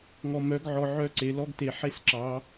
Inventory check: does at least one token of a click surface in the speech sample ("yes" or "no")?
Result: yes